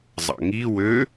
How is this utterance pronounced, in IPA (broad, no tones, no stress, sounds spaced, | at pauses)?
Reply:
zˤ ɑ̰ ŋ i w ø